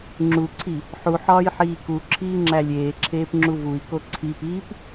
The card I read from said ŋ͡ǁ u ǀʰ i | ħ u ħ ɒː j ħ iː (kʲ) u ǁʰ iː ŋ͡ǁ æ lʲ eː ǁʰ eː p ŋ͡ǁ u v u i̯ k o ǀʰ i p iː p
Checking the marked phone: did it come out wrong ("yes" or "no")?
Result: yes